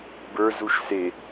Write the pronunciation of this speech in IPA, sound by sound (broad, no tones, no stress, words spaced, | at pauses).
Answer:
bə˞ zuʃse